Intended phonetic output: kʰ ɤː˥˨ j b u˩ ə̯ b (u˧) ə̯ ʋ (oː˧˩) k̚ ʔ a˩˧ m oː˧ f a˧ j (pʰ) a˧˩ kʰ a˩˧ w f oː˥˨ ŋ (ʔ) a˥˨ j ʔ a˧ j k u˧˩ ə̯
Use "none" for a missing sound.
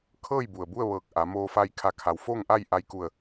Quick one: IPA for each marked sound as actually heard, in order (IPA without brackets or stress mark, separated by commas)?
u˥˨, ɤː˧˩, kʰ, ʔ